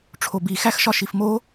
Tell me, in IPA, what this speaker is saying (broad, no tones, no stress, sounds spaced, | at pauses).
ʈ͡ʂʰ o b i x æ x ʃ ɒ ʃ i f m o